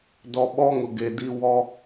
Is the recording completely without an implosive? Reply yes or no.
no